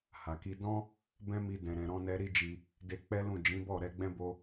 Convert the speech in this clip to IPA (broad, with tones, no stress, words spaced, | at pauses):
ha˨ki˧ dɔ̃˦ | bɛ̃˦mi˧ dɛ̃˨ɾɛ̃˨ɾɔ̃˧nɛ˧ ɾi˦d͡ʒi˧ | de˧k͡pɛ˦lũ˦˨ d͡ʒĩ˨˦bɔ˦˨ ɾɛ˧ɡ͡bɛ̃˦bo˧